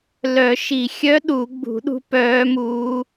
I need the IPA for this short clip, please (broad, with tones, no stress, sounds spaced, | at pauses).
l œ˨˩˦ ʃ i˨˩˦ xʲ œ˧˥ ɗ u˨˩˦ ɡ͡b ṳ˨˩˦ ɗ ṳ˧˥ p œː˧˥ m uː˧˥